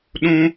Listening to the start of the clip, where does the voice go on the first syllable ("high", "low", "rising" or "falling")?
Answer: high